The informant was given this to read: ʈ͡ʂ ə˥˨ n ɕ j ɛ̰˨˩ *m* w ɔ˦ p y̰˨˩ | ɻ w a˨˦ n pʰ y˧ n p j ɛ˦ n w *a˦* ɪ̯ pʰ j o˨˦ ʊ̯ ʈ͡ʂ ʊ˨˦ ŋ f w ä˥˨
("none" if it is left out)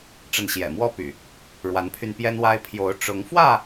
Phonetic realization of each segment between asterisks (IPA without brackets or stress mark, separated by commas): m, a˦